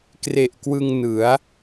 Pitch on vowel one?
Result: low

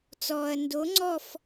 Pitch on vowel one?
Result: low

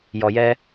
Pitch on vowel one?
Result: low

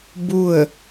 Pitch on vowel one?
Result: falling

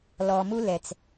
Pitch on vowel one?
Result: low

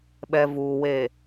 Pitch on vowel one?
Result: low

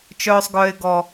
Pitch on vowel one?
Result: high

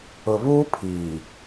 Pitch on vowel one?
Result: low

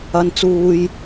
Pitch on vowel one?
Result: low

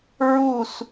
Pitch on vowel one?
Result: falling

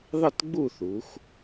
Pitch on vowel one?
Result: falling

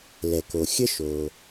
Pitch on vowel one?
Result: low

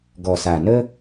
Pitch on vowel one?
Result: low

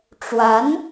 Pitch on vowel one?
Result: rising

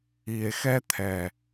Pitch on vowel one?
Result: low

